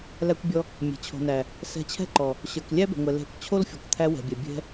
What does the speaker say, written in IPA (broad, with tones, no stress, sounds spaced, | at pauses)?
l æ˧ kʷ bʲ ɔ˧ | mʲ ɛ̤˨ t͡ɕʰ o̤˨ n æ˨ | s ɛ̤˧ t͡ɕʰ ɛ̤˦ ǃ ɔ˨ | ɕ ə˞˨ k lʲ æ˦ b ɛ̤˨ ŋʷ ɛ˨ l ɛ̤˧ kʷ t͡ɕʰ o˦ l fʲ ɔ˨ kʷ t̪ʰ æ˧ w ɛ̤˨ bʲ ɛ˨ bʲ ɛ̤˧